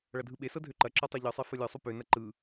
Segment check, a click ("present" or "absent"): present